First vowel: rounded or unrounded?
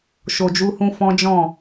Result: rounded